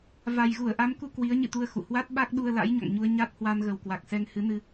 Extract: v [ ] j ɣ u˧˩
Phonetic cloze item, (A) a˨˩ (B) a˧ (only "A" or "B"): A